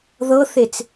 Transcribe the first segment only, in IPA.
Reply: ð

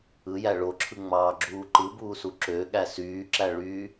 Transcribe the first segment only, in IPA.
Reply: ɯ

